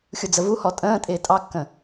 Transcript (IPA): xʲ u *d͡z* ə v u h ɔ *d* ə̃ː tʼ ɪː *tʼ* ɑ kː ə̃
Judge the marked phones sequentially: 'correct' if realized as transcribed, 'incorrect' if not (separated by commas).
correct, incorrect, correct